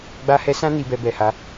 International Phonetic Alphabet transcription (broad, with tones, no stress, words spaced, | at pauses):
ɡ͡ba˧hɛ˧sã˦ ni˧bɛ˧bɛ˨ha˨˦